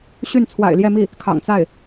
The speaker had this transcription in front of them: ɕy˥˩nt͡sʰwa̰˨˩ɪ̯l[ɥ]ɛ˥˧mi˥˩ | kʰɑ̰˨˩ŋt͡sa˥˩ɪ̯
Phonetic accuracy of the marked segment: incorrect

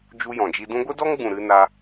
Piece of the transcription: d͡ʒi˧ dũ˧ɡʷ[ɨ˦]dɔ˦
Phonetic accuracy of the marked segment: incorrect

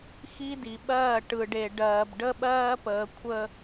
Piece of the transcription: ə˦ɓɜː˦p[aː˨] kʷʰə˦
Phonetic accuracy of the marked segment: incorrect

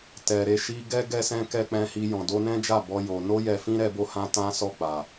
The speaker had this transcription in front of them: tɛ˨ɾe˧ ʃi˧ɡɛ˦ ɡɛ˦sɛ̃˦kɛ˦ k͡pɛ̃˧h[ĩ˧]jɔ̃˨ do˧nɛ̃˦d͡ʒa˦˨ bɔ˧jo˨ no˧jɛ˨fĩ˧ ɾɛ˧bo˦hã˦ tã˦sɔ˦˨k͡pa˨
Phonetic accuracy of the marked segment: incorrect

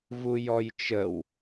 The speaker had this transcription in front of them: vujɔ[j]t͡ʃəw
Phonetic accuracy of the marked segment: correct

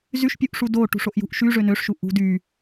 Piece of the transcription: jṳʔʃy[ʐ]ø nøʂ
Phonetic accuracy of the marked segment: correct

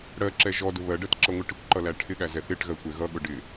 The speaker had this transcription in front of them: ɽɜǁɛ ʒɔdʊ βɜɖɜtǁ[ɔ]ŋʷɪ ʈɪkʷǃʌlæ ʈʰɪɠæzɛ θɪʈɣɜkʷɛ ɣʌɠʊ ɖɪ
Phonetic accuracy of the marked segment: incorrect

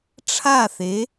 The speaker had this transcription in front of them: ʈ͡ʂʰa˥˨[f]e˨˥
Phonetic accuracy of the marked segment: incorrect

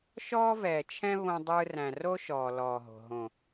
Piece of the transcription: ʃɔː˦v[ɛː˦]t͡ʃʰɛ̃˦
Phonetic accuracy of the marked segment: incorrect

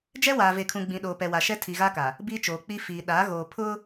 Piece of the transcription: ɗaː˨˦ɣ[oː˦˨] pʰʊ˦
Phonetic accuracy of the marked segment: incorrect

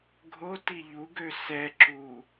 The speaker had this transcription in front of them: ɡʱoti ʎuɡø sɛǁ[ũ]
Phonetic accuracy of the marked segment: incorrect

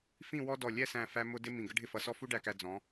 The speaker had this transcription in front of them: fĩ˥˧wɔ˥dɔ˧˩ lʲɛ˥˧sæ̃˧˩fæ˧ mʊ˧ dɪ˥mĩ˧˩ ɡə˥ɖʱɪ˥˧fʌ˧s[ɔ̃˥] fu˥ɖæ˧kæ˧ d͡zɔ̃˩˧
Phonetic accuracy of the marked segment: incorrect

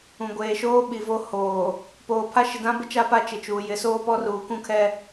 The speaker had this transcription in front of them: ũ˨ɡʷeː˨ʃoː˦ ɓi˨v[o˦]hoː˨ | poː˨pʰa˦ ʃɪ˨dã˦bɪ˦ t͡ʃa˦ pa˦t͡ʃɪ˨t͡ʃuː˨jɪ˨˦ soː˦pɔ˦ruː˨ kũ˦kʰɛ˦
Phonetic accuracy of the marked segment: correct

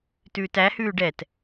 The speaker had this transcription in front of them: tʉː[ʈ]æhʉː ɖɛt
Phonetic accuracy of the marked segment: incorrect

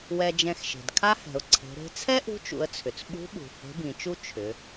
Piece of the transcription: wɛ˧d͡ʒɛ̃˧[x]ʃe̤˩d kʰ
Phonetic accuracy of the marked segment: correct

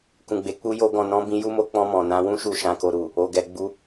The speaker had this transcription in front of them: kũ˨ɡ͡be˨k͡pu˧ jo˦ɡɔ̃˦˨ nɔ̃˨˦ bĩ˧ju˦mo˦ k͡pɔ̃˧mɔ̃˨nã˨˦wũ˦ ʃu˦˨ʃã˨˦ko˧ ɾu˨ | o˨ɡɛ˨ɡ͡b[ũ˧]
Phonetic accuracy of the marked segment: incorrect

